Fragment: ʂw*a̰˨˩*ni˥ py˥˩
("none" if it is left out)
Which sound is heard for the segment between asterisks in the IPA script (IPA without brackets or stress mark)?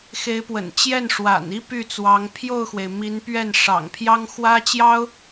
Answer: a̰˨˩